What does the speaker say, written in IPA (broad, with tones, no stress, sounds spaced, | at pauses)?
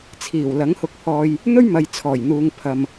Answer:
t͡sʰ iː˨˩ w l ɐ˨˥ ŋ h ʊ˨˥ k̚ pʰ ɔː˨ j | n̪ ɵ˥ ɥ m ɐ˨ j t͡sʰ ɔː˨˩ j n̪ uː˨ ŋ pʰ ɐ˨ m